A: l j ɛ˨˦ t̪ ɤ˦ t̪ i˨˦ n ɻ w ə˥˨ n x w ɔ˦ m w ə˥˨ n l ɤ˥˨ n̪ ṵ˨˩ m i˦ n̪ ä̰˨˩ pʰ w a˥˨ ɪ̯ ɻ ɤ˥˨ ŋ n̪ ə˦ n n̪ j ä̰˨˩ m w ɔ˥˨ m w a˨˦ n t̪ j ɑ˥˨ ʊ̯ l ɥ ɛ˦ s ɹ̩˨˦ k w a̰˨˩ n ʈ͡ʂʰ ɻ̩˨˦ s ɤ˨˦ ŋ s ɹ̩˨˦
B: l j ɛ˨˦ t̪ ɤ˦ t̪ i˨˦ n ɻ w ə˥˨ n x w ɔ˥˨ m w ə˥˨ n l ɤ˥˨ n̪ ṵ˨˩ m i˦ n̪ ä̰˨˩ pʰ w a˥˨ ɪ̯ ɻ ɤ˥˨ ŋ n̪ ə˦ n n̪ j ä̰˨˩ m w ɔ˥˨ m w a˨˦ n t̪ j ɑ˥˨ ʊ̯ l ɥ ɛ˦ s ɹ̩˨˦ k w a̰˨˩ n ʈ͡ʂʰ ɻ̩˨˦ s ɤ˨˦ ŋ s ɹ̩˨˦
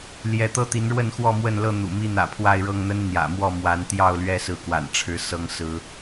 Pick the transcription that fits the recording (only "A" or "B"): B